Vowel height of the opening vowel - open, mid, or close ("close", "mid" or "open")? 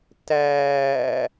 open